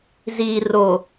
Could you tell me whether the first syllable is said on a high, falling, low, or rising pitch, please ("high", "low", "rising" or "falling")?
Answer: low